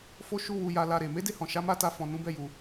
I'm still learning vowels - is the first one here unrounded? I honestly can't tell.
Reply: no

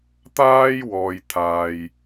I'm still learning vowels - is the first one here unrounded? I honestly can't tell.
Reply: yes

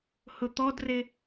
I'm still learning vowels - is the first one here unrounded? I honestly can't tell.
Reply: no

